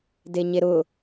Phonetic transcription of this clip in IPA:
d e ɲ e ɾ ʊ

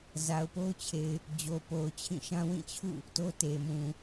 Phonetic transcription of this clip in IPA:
z a˨ ʊ̯ p o˦ ʊ̯ t͡ɕʰ e˨ ɪ̯ | d͡ʑ o˨ p o˨ ʊ̯ t͡ɕʰ ĩ˦˨ ʃ ã˦ w ĩ˦˨ t͡ɕʰ ṵ˦˨ | t o˦ t e˨ m ũ˨

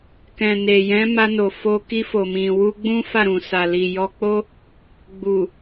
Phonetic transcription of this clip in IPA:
k ɛ̃˨ n e˨ j ɛ̃˨˦ m a˧ n o˨ f o˧ k i˧ f o˨ m ĩ˨ w u˧ ɡ͡b ũ˦ f a˦˨ ɾ ũ˨ s a˨ l i˨ j ɔ˧ k͡p o˦ | ɡ͡b u˨

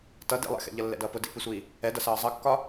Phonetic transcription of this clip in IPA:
t ʌ d ḭ lˠ ɛ̰ x ɛ̰ ʎ ʌ lː ɛ̰ d ʌː p ʊ d ḭ p i sʷ iː | ɛ d ʌ s ʌː zˤ ʌ kː ɒ

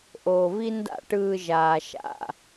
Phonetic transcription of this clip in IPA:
ʔ oː˨ v i˦ n d a̰˦˨ ʈ ɯː˧ ʒ aː˨ ʃ a̰˦˨

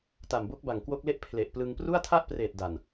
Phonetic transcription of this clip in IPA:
t a˨˩ m b o˦˥ k̚ b a˨˩ ŋ k w o˦˥ k̚ l e˥˩ ʔ pʰ l e˨˩ ʔ p l ɯ˧ ŋ p r u˥˩ a̯ tʰ a˥˩ ʔ p r eː˨˩ t̚ d a˨˩ n

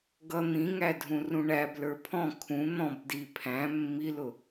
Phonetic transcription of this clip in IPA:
ɡ ʌ n̪ ĩ ŋ æ dʱ ũ r ũ ɳ æ b l ə˞ pʰ ɔ̃ kʰ ũ n̪ ɔ̃ b d i pʰ æ̃ mː i l ʊ

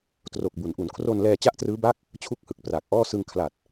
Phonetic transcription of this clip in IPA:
t r o˨˩ k̚ b u˩˦ n ʔ u˩˦ n kʰ r o˧ n l ɛː˧ t͡ɕ a˥˩ ʔ t r ɯː˦˥ b a˥˩ k̚ | t͡ɕʰ u˥˩ k̚ h ɯ˨˩ k̚ p r aː˨˩ k̚ ʔ ɔː˥˩ s ɯ˧ ŋ kʰ l a˨˩ t̚

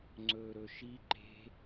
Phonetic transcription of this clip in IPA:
ŋ͡ǀ ɵː ɾ ɵ ʃ i ǃ e̤

